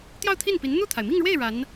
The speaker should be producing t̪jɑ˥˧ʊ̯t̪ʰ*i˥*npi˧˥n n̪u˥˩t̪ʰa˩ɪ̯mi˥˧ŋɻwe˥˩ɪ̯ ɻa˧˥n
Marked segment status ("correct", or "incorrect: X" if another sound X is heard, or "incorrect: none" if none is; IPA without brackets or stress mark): incorrect: i˥˩